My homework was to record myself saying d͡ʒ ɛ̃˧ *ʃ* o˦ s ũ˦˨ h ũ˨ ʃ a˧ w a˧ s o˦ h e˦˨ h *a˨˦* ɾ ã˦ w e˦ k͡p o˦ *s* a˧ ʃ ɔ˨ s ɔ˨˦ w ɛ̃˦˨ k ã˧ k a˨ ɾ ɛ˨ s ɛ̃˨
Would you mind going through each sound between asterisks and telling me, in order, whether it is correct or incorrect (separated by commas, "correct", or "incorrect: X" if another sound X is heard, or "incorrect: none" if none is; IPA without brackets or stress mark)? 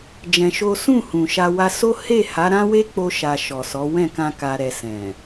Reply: correct, correct, incorrect: ʃ